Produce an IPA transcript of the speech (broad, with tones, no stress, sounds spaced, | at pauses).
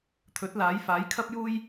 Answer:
t̪ʰ ɵ˨˥ t̚ l aː˨˥ j f aː˨˥ j kʰ ɐ˥ p̚ j uː˥ j